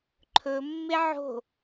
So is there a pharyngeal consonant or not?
yes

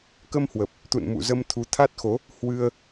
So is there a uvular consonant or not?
no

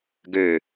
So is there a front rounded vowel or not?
yes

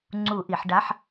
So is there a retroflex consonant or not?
yes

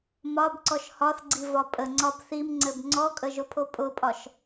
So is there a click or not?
yes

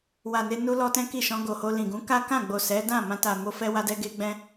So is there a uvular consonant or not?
no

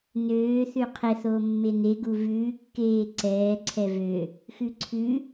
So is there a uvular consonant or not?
yes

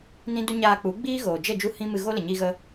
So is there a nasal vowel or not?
yes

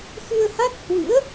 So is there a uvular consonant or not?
no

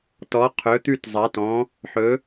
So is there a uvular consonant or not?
yes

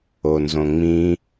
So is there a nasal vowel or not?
yes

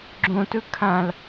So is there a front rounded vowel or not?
no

